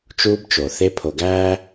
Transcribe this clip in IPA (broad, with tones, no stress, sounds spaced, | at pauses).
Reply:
t͡ʃ uː˦ b t͡ʃ o˨ θ e˦ pʰ o˨ ɡ æː˦